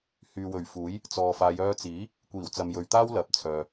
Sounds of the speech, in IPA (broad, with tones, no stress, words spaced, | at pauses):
hyː˨wɵ˨˩ɥfuː˨˥j | t͡sɔː˨faː˨˧j œː˧t͡siː˨˥ | kʷiː˨˩wt͡sɐ˨mjɵ˨ɥt̪aː˥w lɐ˨˥p̚t͡sʰœː˨